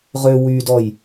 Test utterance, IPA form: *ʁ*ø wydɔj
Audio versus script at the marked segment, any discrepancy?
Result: no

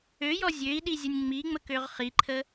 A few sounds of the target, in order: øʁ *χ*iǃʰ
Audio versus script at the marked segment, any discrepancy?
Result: no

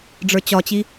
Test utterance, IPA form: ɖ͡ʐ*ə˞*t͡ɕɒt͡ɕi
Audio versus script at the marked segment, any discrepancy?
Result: no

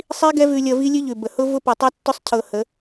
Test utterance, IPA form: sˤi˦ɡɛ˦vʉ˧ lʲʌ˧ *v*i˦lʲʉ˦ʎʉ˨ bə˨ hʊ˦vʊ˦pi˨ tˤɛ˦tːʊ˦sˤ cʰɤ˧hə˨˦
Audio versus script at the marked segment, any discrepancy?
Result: no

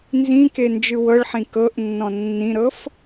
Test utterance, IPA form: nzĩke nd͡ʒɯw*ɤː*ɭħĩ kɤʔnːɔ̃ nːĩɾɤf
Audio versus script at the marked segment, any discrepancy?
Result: yes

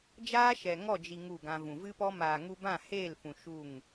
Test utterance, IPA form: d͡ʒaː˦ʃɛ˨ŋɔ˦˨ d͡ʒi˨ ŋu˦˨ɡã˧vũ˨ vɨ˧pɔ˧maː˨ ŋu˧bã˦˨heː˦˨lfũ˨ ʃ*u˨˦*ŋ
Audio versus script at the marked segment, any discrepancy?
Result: yes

